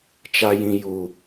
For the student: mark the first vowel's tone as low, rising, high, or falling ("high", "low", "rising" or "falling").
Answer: high